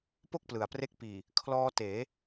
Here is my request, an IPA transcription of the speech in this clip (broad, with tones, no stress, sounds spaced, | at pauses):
p o˥˩ k̚ p l ɯ˨˩ a̯ p r e˦˥ k̚ p iː˨˩ | kʰ l ɔː˧ t eː˩˦